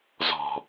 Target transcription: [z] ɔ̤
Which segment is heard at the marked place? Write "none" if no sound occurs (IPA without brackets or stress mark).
z